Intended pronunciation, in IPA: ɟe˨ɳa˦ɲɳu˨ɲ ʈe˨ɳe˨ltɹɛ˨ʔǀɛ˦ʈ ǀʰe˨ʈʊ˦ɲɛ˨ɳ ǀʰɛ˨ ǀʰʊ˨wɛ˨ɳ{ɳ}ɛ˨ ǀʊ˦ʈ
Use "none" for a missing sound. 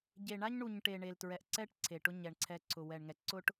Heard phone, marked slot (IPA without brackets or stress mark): ŋ